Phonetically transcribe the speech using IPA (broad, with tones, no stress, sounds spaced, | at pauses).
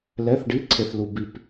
l ɛ˧˥˧ θ ɖ i˧˥˧ ǀʰ e˧ θ l u˧ b i˧ p